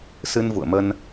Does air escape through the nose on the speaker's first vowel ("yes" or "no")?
no